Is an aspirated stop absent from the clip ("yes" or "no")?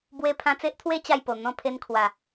no